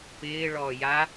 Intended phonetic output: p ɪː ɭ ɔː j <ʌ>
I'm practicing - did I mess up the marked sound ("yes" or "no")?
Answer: yes